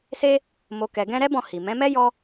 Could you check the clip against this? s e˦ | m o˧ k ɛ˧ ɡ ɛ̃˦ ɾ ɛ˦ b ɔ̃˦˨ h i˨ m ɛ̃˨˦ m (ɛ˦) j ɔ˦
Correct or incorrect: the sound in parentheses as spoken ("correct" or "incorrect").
correct